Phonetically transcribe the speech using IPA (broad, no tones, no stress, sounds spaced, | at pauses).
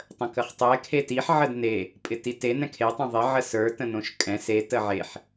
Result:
tˤ ə̃ k ə χ tˤ ɛ kʰ e t i ħ ʕ ə d n e | pʼ ɪ t i t e n ɛ̃ kʰ e tˤ õ ðˤ ɪ ʕ ə s ə˞ t ə̃ n õ ʃ kʼ ɛ̃ s e t ə ʕ e ħ